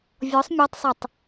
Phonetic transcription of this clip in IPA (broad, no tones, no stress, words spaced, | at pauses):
vʲɔsˤ mʲatˤsˤotˤ